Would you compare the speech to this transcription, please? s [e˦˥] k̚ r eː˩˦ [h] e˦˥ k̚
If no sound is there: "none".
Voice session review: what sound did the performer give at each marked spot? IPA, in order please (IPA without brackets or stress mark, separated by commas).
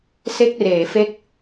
e˦˥, f